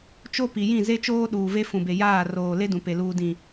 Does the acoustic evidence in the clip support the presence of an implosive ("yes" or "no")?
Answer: yes